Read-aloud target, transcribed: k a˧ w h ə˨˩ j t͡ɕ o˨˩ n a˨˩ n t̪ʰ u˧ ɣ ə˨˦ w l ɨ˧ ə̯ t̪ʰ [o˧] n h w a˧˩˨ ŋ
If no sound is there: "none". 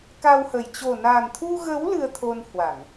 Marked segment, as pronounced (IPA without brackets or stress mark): o˧